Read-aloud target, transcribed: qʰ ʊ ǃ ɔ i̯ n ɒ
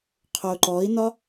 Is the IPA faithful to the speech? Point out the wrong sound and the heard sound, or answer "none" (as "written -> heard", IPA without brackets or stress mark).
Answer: none